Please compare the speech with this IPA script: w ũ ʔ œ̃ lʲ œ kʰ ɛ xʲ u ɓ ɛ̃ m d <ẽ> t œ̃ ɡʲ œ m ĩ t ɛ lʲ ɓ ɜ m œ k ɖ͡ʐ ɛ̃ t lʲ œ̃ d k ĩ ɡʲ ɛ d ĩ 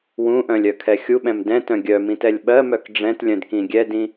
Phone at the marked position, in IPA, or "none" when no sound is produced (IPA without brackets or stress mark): ɛ̃